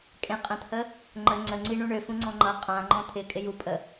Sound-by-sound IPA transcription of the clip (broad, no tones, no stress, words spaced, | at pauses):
kʼẽqʼə̃t̪ʰə | ŋ͡ǃə ŋ͡ǀəŋ͡ǀi ɳũɳøfũŋ͡ǀɔ̃ ŋ͡ǃʌ qʼãŋ͡ǃɔ̃ t̪ʰɪ kʼɪjupʼə